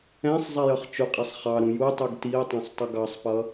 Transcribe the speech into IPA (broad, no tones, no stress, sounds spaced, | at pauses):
ɛ̃ sˤ zˤ ɛ j ʌ χ t͡ʃ ʊ qʼ ɛ sˤ χ ɑ ɾ ũ j u tˤ u ɡ t i ə̯ tˤ ɛ̃ sˤ tˤ ə ɡ ɑ sˤ p ʌ